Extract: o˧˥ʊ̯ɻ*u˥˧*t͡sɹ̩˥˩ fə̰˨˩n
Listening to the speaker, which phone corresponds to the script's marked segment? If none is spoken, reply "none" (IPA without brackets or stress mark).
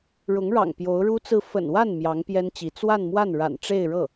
u˥